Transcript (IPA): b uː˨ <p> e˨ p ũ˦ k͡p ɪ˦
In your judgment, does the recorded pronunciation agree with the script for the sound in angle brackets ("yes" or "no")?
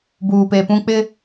yes